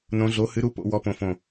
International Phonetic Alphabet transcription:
nõ˧˥ɮo˧˥ hɨ˧˥ɾu˧˥ po̰˧˥ wɔ˧˥põ˧˩fõ˧˩

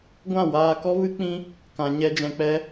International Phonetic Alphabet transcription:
ɡʷã˦˨waː˧kɔ˦vɨ˦ k͡pĩ˦ | kã˨ɲɛ˧ d͡ʒɛ̃˨k͡pɛ˧

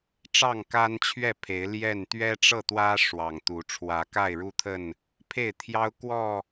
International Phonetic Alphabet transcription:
ʈ͡ʂɑ˥˨ŋka˦nt͡ɕʰɥɛ˥˨pʰe˨˦ɪ̯ ljɛ˥˨n t̪ɥɛ˦ʈ͡ʂɤ˥˨t̪wä˦ ʂwɑ˨˩ŋt̪u˨˦ ʈ͡ʂʰwä˨˦ka˥˨ɪ̯ɻu˦t̪ʰə˥˨n | pʰe˥˨ɪ̯t̪ʰjɑ˦ʊ̯ kwɔ˥˨

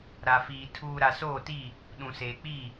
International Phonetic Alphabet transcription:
ɾa˨fiː˨ tʰuː˨ ɾa˨soː˦˨tiː˦˨ | ɗũ˨seː˨k͡piː˦˨

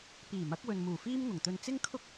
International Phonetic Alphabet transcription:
piː˨˩mɐ˨˥k̚wɵ˨n muː˨˩fiː˥m ŋʊ˨˩ŋt̪ɵ˧n t͡sɪ˥ŋkʰʊ˥k̚

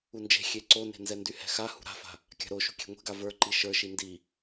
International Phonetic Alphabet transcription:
und͡ʒe̤ xʲeǀone̤ nzɛndyhɛ̤xa hṳɾa̤fa̤ | kʲa̤ɾoʃṳ kʲe̤ŋʷe̤ɡa və˞ǃi ʃə˞ʃi ndi

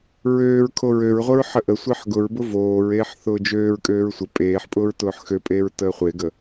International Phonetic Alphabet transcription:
ɹøːɹ kʰoɹøɹʁʷəɹ ħəʔəsʷeħ ɡʊɹbʊ voːɹeːħ θʊːd͡ʒøːɹkʼøːɹ sʷə pʼeːħpʼʊːɹ tʊːħxøpʼeːɹ təːχʷeɡə

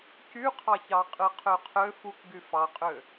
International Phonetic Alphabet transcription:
cyqʰɑçɑqʼɯ qʰøqʰø fuk ɡyfɑqʼø

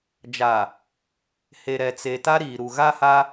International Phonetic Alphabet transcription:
d͡ʒa˨ | he˨ɾɛ˨ t͡se˨ ta˦ɾiː˨ɾu˨ ɣa˦ha˦

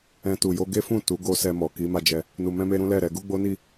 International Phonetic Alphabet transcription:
ɛ̃˧ tu˨jo˧ ɡe˦fũ˦˨ tu˨˦ɡo˧ sɛ˧ mɔ˨ ki˨˦ma˧d͡ʒɛ˧ | nu˨mɛ̃˧me˧ ɾũ˦lɛ˦˨ɾɛ˧ ɡu˦ɡ͡bo˦ni˦˨

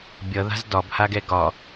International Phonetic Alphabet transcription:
bʲʌða̤z dɒbhaɡɛ ɡɒ

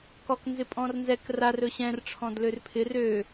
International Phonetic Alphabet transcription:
kɔknzɪpʼɔ̃rnzɛk rar ɵɕɛ̃r ʈ͡ʂʰɔ̃dlørpʰɪ rø

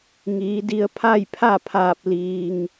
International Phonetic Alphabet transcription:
ŋiː˩˧di˧ə̯ pʰa˥˨jpʰa˥˨pʰaː˧˩p̚ liː˩ŋ

